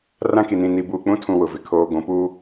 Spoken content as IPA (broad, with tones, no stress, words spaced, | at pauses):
rã˦ki˨nĩ˨ ni˨buː˨k͡pũ˦ tʰũ˨ wʊ˨vɪ˨ kʰoː˨ɡʷũ˨ puː˦